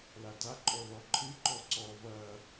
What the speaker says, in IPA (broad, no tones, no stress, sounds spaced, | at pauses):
l a d a ǃʼ ɔ ð ɔ ǃʰ ɨ ǃ ɔ ǀ ɔ v ɐ